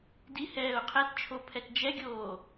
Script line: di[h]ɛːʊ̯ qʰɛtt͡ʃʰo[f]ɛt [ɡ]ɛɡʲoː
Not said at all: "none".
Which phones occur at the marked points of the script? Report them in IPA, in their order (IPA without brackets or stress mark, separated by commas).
h, pʰ, d͡ʒ